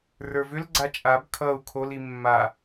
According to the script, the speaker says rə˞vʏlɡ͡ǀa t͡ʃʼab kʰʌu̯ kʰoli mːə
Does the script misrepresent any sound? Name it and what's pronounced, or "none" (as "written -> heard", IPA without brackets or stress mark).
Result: ə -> a